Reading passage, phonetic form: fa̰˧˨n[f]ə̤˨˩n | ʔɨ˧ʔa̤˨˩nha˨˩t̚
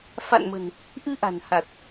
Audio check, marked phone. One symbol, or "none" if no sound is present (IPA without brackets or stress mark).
m